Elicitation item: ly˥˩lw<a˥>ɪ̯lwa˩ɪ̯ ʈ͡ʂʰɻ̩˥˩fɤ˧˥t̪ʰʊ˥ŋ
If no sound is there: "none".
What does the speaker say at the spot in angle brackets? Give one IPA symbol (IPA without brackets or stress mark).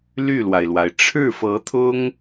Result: a˩